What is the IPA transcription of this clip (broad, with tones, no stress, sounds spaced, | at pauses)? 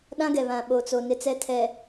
ɗ ã˦ ɡ ɛ˨ β ã˨ ɓ o˨ t͡s o˨ n ɪ˦ t͡s ɛ˦ tʰ ɛ˨